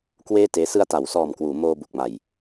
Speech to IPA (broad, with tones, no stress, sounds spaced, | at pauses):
k w eː˥˩ t eː˦˥ s ɯ˧ a̯ t a˩˦ w s ɔː˨˩ m k w uː˩˦ m oː˧ b u˨˩ k̚ m a˨˩ j